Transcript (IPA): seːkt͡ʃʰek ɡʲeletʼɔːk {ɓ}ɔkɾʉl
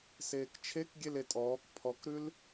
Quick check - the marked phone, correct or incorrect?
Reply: incorrect